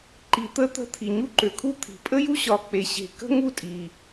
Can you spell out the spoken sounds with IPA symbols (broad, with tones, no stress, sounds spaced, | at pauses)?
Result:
ǃ i˧ t̪ ə˥ t̪ ə̤˥ t̪ʰ i˧ ɲ u˥ ǃ ø˧ kʰ u˥ t̪ʰ i̤˧ pʼ ə˥ j u˥ ɕ ɒ˧ k͡p e˧ ɕ e̤˧ k ə̤˥ ŋ u˥ tʼ i˧